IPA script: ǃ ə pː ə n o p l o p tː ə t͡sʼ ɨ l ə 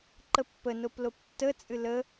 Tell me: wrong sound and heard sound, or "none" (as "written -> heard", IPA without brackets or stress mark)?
none